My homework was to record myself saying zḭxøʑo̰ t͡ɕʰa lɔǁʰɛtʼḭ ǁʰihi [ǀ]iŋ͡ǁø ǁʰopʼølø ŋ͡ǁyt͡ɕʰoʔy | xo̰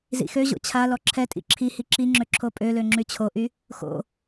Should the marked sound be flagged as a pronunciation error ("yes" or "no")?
yes